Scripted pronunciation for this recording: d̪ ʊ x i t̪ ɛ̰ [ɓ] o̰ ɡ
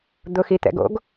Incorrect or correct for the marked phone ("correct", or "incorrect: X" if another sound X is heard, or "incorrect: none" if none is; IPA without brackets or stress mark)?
incorrect: ɡ